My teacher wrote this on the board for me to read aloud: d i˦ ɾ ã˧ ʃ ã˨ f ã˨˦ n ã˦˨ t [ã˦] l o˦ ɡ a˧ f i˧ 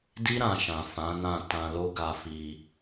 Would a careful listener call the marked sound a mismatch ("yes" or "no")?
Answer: yes